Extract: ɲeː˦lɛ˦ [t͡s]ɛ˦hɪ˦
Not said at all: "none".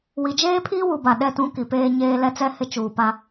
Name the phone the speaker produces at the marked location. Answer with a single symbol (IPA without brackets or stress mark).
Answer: t͡s